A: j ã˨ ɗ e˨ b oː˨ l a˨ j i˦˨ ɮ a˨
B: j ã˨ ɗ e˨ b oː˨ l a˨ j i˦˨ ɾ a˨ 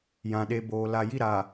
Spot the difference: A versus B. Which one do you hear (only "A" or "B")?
B